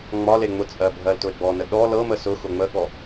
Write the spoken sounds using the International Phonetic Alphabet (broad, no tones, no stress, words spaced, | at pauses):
ŋ͡mɒ leŋ͡mʊt͡sʼɜ bʱɜltʊe̯ɡ͡bɔnə ɗɔ lɤmə sʊ xʊŋ͡məɠɔ